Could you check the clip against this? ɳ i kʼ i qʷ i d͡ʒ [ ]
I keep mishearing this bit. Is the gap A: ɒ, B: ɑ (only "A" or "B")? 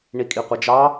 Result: B